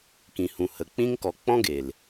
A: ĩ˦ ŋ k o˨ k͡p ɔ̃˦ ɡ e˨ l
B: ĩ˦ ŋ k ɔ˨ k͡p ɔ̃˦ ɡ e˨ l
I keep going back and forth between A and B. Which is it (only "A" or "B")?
B